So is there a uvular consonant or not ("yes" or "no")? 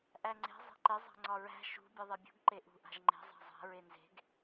no